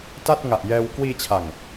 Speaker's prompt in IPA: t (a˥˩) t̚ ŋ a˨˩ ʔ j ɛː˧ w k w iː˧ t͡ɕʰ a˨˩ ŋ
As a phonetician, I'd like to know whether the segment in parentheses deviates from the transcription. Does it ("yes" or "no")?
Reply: no